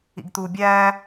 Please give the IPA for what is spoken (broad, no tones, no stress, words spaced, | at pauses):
ḭɡt̪u bʲæː